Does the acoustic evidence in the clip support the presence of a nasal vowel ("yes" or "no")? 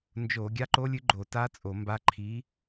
no